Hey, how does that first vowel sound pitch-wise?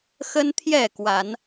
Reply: high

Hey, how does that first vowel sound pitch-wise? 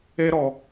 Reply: high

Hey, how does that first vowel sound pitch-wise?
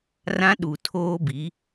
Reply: high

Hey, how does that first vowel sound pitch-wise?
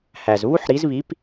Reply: low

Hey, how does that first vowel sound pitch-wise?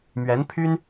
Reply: rising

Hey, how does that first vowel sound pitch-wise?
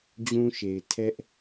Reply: high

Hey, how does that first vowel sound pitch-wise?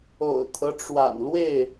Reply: low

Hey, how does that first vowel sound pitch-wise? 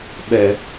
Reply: low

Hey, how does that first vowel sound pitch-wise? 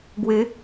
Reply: rising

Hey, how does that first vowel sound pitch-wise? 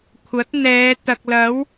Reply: rising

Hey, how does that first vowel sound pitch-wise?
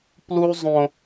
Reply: high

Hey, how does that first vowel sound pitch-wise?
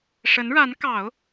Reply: rising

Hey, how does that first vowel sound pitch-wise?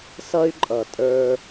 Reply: high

